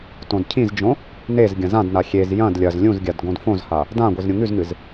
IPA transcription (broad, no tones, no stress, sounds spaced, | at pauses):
t õ d cʰ ĩ z d͡ʒ õ | n e z ɡʲ ɐ̃ z ã d n a xʲ e z j ɐ̃ d lʲ ɐ z lʲ ũ z ɡʲ a d ɡ õ d f õ z h a | d ã ɡʷ i z ɾʲ ũ ŋ ʉ z ŋ ɨ z